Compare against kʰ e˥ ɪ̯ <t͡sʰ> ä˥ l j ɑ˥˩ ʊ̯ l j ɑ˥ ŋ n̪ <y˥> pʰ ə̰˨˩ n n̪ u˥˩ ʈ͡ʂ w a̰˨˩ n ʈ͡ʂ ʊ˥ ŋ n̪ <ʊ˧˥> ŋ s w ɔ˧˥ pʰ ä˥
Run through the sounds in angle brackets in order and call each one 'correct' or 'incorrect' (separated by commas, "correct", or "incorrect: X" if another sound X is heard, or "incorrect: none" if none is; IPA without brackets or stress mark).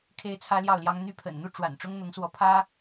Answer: correct, correct, correct